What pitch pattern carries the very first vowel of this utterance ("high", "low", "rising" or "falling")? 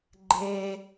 high